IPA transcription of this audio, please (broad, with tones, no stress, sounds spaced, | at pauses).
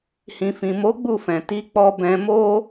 h ĩ˨ f ĩ˨ m o˨˦ ɡ͡b u˦˨ f ɛ̃˨ t i˨˦ k͡p ɔ˧ b ɛ̃˧ m o˦